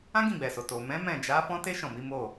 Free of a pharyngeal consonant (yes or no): yes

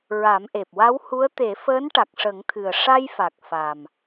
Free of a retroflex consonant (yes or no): no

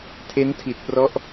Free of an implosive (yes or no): yes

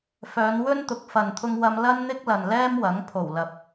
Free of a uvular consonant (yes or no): yes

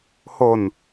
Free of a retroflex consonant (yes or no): yes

